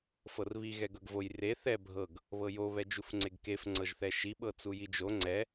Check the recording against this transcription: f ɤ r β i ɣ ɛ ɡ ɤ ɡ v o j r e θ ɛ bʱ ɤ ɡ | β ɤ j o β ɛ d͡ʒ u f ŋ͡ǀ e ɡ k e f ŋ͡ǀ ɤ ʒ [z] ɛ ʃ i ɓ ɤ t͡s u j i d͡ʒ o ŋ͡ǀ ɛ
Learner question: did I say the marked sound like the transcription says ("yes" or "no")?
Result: no